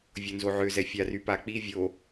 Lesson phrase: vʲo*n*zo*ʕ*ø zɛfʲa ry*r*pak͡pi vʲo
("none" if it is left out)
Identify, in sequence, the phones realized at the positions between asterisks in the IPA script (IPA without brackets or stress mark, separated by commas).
n, ʕ, none